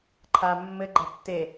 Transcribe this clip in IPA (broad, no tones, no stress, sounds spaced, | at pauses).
ǃʰ a mː ɘ ɡ͡ǃ ɐ tː e